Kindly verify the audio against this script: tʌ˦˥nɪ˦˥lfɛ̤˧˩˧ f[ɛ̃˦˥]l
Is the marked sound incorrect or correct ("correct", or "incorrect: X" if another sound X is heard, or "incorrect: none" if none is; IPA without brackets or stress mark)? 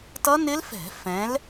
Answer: incorrect: ɛ̃˨˦